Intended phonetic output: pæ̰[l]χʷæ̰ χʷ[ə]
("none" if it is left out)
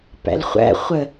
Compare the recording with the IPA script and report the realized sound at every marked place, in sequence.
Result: l, ə

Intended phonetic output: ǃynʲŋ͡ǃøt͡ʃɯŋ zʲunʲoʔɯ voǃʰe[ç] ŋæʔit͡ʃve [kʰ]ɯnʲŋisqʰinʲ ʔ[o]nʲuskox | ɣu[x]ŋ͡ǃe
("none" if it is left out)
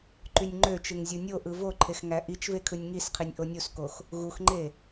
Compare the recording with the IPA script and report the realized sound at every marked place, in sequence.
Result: x, kʰ, o, x

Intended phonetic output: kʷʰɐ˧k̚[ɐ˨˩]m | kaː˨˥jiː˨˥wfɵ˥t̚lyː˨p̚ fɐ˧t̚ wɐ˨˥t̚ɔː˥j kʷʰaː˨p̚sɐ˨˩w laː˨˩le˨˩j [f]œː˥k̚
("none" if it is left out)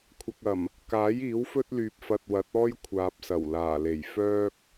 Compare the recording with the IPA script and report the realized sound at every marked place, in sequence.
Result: ɐ˨˩, f

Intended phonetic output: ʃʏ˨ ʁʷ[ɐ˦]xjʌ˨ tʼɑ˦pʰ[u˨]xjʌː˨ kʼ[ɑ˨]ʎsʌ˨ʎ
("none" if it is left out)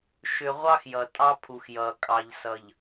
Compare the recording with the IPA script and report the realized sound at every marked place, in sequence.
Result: ɑ˦, u˨, ɑ˨

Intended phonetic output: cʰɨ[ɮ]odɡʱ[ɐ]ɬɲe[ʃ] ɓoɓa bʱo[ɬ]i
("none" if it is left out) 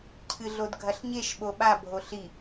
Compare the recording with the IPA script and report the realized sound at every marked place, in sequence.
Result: ɮ, ɐ, ʃ, ɬ

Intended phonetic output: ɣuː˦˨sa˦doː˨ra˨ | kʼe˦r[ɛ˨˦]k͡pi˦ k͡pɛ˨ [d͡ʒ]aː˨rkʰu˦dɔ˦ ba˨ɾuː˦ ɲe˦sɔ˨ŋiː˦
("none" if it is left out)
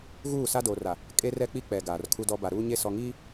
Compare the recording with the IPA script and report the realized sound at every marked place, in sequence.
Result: ɛ˦, ɡ

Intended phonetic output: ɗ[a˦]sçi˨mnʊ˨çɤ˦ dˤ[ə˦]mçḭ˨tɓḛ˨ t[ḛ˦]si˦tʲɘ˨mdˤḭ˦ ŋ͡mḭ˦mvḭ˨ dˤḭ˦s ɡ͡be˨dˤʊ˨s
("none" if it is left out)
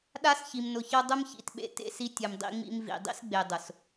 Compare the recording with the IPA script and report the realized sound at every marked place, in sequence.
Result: a˦, ʊ˦, ḛ˦

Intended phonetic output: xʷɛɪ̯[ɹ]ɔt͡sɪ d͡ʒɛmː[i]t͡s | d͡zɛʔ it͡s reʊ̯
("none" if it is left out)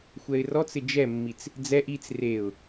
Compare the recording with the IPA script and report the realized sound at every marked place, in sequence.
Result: r, i

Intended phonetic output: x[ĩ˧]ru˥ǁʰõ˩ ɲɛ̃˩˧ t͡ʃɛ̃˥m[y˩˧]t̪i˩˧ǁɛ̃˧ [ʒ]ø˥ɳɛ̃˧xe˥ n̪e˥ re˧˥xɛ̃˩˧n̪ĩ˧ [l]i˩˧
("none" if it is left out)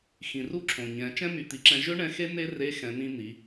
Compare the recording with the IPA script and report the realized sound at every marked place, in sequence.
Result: ĩ˩, y˩˧, ʒ, n̪

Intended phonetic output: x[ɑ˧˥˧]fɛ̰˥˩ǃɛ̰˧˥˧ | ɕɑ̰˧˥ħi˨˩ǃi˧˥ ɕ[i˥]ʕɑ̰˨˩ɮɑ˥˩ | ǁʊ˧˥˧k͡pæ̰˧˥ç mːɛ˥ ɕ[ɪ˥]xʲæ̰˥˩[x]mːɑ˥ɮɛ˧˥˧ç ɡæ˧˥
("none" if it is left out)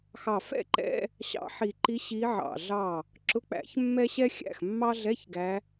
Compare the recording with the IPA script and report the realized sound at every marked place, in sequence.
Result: ɑ˨˩, i˧˥, ɛ˥, x

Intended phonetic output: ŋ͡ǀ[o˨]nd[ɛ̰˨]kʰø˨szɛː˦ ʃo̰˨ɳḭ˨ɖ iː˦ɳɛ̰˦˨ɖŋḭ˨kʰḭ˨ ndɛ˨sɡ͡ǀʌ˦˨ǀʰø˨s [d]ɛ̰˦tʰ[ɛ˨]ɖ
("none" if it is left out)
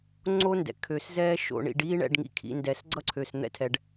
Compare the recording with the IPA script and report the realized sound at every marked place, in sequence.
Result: o˦, ɛ̰˨, n̪, ɛ˨

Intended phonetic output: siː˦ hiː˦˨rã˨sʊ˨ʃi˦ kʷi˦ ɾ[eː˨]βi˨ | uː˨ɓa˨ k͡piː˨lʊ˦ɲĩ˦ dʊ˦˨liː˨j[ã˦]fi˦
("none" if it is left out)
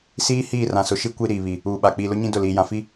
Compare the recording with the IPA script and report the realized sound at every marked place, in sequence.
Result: iː˨, ã˨

